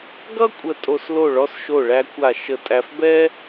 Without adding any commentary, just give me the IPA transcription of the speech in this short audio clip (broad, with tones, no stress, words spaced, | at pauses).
ɡʌ˥kʷʼə˧˩ tʼo˧s lo˧˩ɭɔ˧s ʃo˧˩ɭæ˧kʷa˧˩ ʃə˧˩tʼæ˧fbɛ˥